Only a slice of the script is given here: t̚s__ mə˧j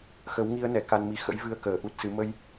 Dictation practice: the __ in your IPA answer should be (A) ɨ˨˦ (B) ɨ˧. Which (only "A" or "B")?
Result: A